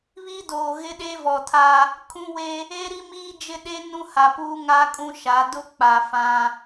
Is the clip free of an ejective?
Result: no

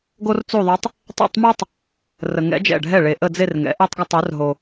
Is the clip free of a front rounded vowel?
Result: no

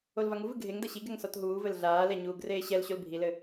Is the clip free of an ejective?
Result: yes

